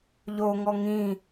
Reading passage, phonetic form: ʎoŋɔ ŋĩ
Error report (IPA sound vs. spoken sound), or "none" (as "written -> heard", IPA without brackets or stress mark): none